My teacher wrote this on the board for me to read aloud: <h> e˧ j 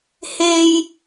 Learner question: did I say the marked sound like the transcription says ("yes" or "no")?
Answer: yes